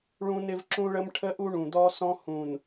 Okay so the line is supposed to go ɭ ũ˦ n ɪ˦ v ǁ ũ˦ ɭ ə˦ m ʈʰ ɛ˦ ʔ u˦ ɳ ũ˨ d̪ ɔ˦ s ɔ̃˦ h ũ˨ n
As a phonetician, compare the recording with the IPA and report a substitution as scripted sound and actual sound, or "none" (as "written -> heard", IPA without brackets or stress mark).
ɛ˦ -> ə˦